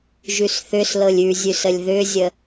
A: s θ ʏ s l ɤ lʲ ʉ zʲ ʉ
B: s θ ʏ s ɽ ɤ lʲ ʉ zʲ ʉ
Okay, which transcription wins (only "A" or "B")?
A